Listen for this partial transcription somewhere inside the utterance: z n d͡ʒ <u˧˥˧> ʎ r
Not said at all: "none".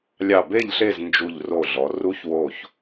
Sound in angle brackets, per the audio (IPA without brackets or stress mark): u˧˩